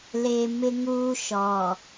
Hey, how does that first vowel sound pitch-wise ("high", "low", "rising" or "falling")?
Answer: low